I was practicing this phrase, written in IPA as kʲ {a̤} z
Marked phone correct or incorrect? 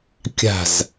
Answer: correct